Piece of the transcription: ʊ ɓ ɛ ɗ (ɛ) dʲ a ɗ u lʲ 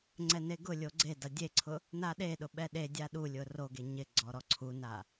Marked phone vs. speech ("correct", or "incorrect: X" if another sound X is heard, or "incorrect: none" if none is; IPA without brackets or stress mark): incorrect: e